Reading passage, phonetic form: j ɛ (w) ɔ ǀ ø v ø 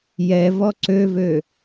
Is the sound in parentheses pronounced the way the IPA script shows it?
no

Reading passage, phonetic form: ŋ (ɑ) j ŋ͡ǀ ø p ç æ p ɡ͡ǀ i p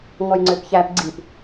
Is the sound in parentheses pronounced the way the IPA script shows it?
no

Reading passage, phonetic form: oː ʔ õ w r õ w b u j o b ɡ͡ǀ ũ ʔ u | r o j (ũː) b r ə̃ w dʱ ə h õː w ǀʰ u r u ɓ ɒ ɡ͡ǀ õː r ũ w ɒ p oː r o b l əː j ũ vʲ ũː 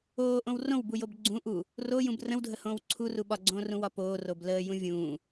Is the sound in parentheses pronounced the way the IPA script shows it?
no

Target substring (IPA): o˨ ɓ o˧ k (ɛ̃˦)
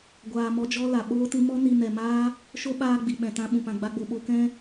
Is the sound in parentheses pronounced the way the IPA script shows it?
yes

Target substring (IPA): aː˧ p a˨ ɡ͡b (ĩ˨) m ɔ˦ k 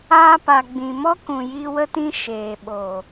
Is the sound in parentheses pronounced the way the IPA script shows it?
yes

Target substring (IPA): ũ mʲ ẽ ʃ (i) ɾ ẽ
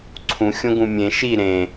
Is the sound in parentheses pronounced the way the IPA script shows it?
yes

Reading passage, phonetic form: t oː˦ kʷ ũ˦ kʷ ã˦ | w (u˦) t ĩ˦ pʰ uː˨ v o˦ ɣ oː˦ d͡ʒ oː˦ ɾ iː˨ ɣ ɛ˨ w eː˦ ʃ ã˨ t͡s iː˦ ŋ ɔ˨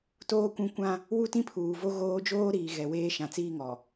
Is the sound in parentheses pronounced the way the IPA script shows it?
yes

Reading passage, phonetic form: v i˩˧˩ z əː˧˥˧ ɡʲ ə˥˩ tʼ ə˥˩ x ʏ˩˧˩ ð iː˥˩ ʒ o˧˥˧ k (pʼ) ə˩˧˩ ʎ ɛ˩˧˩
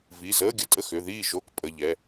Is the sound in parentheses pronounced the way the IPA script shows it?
yes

